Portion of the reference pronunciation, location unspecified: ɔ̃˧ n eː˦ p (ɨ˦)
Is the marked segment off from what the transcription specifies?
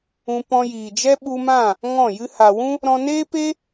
yes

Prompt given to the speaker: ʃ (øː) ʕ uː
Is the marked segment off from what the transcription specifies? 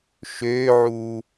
no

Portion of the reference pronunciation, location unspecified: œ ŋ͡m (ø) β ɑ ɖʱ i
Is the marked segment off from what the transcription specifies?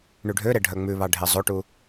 yes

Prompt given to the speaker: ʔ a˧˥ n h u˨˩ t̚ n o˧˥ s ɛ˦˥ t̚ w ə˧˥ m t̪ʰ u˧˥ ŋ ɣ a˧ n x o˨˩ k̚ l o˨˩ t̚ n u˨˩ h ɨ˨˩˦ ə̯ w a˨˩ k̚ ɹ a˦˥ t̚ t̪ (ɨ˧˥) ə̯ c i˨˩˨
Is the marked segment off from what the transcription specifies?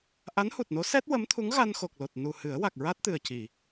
yes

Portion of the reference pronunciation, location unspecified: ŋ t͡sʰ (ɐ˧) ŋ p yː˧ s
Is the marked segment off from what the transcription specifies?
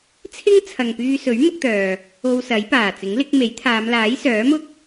yes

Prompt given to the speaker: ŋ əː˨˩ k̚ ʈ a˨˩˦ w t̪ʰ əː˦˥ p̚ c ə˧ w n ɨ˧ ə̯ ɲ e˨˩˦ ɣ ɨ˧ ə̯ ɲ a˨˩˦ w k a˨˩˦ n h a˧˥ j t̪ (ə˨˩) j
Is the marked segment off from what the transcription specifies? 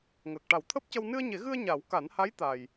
yes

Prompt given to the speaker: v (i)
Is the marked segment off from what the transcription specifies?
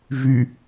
yes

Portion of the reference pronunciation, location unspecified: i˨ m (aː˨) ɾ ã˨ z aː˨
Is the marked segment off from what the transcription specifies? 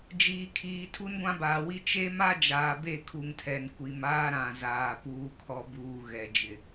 yes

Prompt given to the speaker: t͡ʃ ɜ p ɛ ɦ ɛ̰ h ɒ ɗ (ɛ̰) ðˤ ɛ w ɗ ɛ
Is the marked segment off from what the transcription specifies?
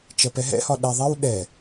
yes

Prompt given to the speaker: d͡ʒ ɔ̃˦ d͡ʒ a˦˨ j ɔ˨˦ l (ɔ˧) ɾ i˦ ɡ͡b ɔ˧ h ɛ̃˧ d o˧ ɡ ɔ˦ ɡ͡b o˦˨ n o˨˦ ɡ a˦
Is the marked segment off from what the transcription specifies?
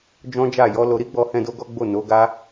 yes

